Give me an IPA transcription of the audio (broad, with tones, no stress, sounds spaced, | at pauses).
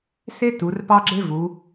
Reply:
s e˥ t u˩˧ r p ɑ˥ ɡ͡ǁ e˥ v u˩˧